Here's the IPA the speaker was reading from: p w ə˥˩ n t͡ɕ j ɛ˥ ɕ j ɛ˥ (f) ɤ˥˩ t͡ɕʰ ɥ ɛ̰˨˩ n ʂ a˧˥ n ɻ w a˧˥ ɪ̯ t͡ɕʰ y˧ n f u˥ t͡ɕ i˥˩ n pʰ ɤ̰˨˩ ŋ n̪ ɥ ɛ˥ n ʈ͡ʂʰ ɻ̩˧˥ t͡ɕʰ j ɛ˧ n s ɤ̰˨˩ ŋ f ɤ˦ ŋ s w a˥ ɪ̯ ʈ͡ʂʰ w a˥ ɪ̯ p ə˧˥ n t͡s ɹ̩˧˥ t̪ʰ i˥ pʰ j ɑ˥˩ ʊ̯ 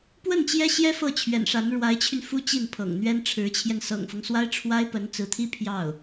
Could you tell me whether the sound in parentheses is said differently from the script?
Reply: no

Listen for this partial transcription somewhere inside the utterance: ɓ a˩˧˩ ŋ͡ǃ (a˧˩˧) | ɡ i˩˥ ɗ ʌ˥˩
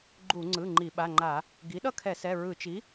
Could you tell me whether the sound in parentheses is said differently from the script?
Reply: no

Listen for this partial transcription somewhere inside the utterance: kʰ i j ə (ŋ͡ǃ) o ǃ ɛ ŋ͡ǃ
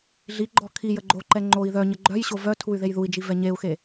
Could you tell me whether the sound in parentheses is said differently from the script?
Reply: yes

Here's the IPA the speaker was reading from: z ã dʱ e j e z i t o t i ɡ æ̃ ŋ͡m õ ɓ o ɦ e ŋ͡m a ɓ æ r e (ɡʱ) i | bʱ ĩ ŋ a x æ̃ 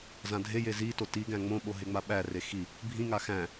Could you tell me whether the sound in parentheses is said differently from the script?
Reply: yes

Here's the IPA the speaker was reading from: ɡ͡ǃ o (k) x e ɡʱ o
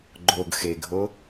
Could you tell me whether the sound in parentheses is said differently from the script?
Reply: yes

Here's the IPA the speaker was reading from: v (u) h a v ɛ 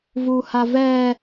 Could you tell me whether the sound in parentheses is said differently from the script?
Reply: no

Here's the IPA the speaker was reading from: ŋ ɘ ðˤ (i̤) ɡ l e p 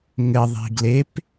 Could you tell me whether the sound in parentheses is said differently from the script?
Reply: no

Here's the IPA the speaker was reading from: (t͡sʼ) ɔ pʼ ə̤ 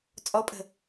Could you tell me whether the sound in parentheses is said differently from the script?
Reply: no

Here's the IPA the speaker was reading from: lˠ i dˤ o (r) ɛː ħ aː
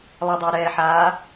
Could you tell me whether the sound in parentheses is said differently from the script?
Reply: yes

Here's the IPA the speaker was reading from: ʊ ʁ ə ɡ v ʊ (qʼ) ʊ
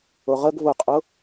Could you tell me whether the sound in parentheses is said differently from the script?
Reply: no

